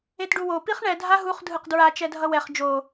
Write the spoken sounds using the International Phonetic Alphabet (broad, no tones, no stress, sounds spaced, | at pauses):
e t ɖ u w o p i χ ɳ ɛ dʱ a ɦ u χ dʱ ɯ q d ɹ a t͡ʃ ɛ dʱ ʌ w ɛ χ d͡ʒ o